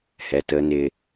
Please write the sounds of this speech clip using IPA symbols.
h ɛ˨ t ə˦ n ɪ˦

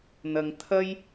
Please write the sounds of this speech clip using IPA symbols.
n̪ ɐ˨ ŋ t̪ʰ ɐ˥ j

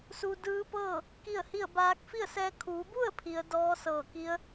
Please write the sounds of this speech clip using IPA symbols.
s u˧ d ɯː˧˥ p ɤː˥˨ | k i˥˨ ə̯ h i˥˨ ə̯ b aː˧˥ k̚ f i˥˨ ə̯ s ɛː˧ kʰ uː˩˧ b u˥˨ ə̯ pʰ i˩˧ ə̯ d ɔː˧˥ s ɤː˧˩ k i˧˥ ə̯

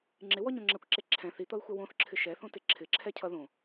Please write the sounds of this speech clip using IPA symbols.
ŋ͡ǁ ɪ w ɔ ɲ õ ŋ͡ǁ ɛ kʷ ǁ e ǁʰ ɛ̃ θ i t̪ ʌ ɪ̯ xʷ ɛ w õ θ ǁʰ ɪ ʃ ɛ θ õ t ɪ ǁʰ ɪ ǁʰ ɛ cʰ ʌ ð õ

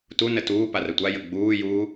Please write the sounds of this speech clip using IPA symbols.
t u n ə t uː p a r ə tʷ a j ə ɡ͡b uː j uː

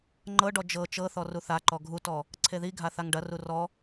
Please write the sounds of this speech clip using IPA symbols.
ŋ͡ǃ ɤ ɖ ɔ d͡ʒ ɤ t͡ʃ ɤ θ ɔ r u θ a ǃ ɔ ɡʱ u t ɔ | ǀʰ e ð i ɡʱ a θ a ŋ ɖ ɐ r u r ɔ

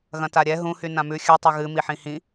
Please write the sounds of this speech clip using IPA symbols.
ɣ ɐ̃ t a ɾʲ ɛ ɦ ũ h y n ã m ʉ xʲ ʉ tˤ y ɣ ɨ m i ħ ĩ h ĩ

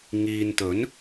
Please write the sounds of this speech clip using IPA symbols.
ŋ iː˨ n t̪ ɵ˨˥ n

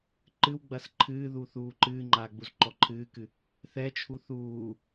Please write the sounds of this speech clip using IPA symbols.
ǃ ɨ w ɡ͡b ɐ s ǃʰ ɨː ð uː θ uː ǃ ɨː ŋ͡ǃ aː ɡ͡b u z ǃ ɔ ǃʰ ɨː k ɨ | θ ɛ t͡ʃʰ u θ uː

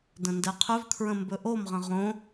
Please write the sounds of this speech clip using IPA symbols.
d ə̃ n d ɛ qʰ ɵ v kʰ ɹ ə̃ m b ɵ ʔ o m ʁ ə̃ ʁ õ

